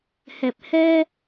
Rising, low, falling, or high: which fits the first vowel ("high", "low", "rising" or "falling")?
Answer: low